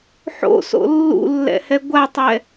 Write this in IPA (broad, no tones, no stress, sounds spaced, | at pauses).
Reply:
ħ o̰ s o̰ lː ṵ lː ɛ̰ h ɛ ɡʷ a tˤ ɛ